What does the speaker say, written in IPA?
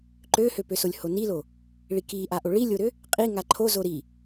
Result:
ǃøhøpøsolʲ honilo | ɭikiʔaʔo ɭilʲoɾø | qʼiŋa ǃʰozo ɾi

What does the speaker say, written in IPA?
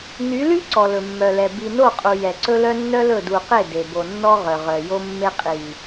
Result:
ny˨˦ly˦ ǀɔ˨lɵ˨mːœ˨lɛ˨ bi˨no˦˨qʼu˨ jɛ˨ǀɵ˦lœ˦ nːœ˦lɵ˦˨ du˨qe˦˨ de˨ bo˨nːɔ˦ ʁœ˨ʁœ˨jo˦mːe˦ qʼi˨

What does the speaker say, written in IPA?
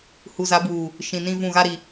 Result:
hu˨za˨˦buː˨ | ʃĩ˨ nĩ˦vũ˦˨ ɣa˦ɾi˨

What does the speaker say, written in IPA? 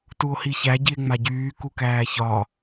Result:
tuo̯hiçæ ɟie̯ŋ͡maɟyː kukæːçɒ

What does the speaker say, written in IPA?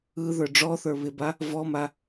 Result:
ɯ ðə˞ɖ͡ʐɔθə˞ βɪba | vɔma

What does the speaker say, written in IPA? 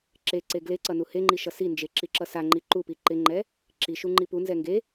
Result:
ǁeǀe ɡleǀʌ nuheŋ͡ǃi ʃʌsind͡ʒe ǁiǁʌsaŋ͡ǃi ǃupi ǃɪŋ͡ǃɛ | ǁiʃu ŋ͡ǃipunzɛ ŋɡe

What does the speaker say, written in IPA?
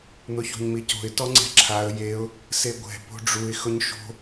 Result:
n̪ʊço̤ɲmico̤ɪ̯ tɔŋ͡ǀɛ̤ǁʰaə̯ jeʊ̯ | seɡʷɛ̤ po̤ɖ͡ʐuɪ̯ xʊɲʃo̤

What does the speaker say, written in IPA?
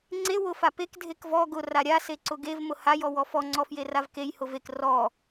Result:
ŋ͡ǀe wʊfa pek dʱekvɔ ɡʊ raɾʲaseǀʊ ɡev mʊhajɔ wɔfɔ ŋ͡ǀɔfjeravkej hʊvek rɔ

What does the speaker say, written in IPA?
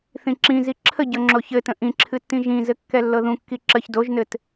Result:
θĩǁĩzi ǁʰəɟɤ ŋ͡ǁoçɘtə̃ ʔĩǁʰɨtːĩ ʒĩzɘ kːɛlːɤðũkːi ǁəç doʒnɘt

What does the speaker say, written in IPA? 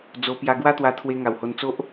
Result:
d͡zo˧pja˧ɡwa˦t̪wa˧ t̪ʰwe˧ŋa˨˩who˧nt͡so˦ʔ

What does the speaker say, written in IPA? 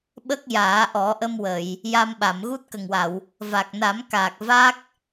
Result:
ɓə˦˥k̚jaː˨˩˦ʔɔ˨˩˦ʔə˧m wə˨˩˨j | ja˧mɓa˨˩˨m ɣu˦˥t̚kə˨˩ŋwa˨˩˨w | va˨˩k̚na˨˩˦mkaː˨˩k̚ va˦˥k̚

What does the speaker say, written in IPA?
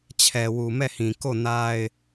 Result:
t͡ɕʰɛ˨wu˨ mɛ˦˨hĩ˨ ko˦˨na˦ɪ̯

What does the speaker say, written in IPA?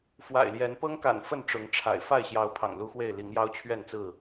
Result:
fwa̰˨˩ɪ̯ljɛ˨˦n pɤ˦ŋka̰˨˩n fə˥˨nʈ͡ʂʊ˨˦ŋʈ͡ʂʰa̰˨˩ɪ̯ fa˥˨ɪ̯ɕjɑ˨˦ʊ̯ pʰɑ̰˨˩ŋlu˦xwe˥˨ɪ̯ li˨˦ŋjɑ˦ʊ̯t͡ɕʰɥɛ˥˨nt͡sɹ̩˥˨

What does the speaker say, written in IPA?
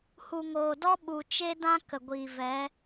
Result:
hu˨ŋoː˨dɔ˦ ɓu˨t͡ʃe˦ dã˦ kə˨ɡʷiː˨vɛ˨˦

